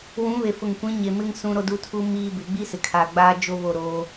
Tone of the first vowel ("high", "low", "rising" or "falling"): rising